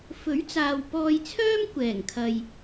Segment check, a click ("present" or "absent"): absent